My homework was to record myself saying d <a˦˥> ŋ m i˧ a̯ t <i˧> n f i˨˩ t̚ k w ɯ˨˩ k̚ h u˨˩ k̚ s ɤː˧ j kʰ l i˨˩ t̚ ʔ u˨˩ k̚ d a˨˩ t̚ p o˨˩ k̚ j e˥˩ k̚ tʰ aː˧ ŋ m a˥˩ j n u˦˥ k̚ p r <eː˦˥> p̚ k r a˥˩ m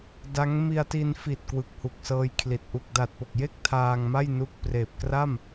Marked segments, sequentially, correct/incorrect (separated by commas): correct, correct, incorrect